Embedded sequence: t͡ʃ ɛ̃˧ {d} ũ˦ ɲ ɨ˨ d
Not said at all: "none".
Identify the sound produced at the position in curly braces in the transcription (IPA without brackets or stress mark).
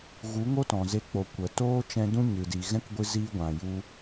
d